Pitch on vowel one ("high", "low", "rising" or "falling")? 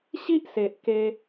high